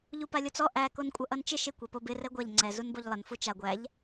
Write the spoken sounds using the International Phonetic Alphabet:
ʎ u p a lʲ o t͡s ɔ ʔ æ k o n kʷʼ ʌ ʔ ʌ n t͡ʃ ɪ ʃ ɪ kʷ ɛ p o b ɪ r ɛ ɡʷ a ʎ ŋ͡ǀ ɛ z u n b o ʎ lˠ ə n f u t͡ʃ a ɡʷ æ ʎ

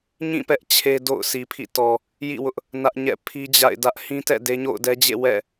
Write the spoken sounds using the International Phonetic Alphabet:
ɲ ĩ˦˨ p ɛ˦ ʔ t͡ɕʰ e˦ d o̰˦˨ ʊ̯ sʰ i˨ pʰ ḭ˦˨ t ɔ˨ | j ḭ˦˨ w ʊ˦ ʔ | n ä˦ ʔ ɲ ɛ̰˦˨ pʰ i˦ d͡ʑ a̰˦˨ ɪ̯ d ä˦ ʔ h ĩ˦ t ɛ̰˦˨ d e˦ ɲ o̰˦˨ ʊ̯ d ɛ˦ d͡ʑ ḛ˦˨ w ɛ̰˦˨

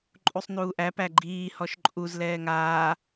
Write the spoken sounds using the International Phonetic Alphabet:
ǃʼ u sˤ n uː ʔ æ p æ ɡ͡ǃ iː h ɔ ʃ ǃʼ u z l ɛː ŋ aː

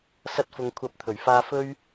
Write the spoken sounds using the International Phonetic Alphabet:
s ɐ˥ t̚ f ʊ˧ ŋ kʷʰ ɐ˨˥ p̚ t̪ʰ ɵ˨˩ ɥ f aː˧ f ɵ˥ ɥ

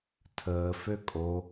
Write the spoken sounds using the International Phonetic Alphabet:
tʰ əː f ø kʼ o

